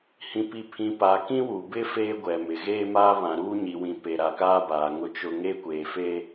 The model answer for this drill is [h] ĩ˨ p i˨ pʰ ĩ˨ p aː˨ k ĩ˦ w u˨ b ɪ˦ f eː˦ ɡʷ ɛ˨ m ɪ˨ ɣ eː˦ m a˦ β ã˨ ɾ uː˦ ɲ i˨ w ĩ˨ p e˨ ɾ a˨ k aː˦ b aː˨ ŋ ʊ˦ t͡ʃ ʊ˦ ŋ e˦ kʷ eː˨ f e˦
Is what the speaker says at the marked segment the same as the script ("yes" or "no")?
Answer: yes